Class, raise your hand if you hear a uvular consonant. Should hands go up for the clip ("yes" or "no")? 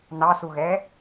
no